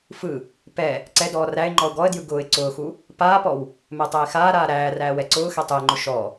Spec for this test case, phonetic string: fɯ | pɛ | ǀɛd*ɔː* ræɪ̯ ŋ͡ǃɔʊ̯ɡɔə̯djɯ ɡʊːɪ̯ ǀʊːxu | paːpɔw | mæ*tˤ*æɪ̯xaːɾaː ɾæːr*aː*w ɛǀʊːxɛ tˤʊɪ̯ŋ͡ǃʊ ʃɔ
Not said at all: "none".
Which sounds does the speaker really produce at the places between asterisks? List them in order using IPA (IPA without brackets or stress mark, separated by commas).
ɔː, tˤ, æː